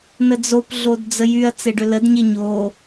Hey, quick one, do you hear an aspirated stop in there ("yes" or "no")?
no